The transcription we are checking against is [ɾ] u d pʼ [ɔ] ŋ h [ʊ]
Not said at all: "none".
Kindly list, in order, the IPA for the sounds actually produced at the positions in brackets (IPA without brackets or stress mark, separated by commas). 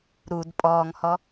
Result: ɾ, ɔː, ɔ